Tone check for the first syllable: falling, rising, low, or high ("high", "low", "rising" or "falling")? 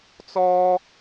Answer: high